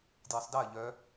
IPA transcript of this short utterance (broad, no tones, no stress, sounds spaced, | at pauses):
d j ɨ sˤ d ɜ ʎ œ